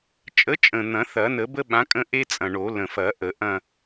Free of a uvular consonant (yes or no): yes